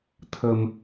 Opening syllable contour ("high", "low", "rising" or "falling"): low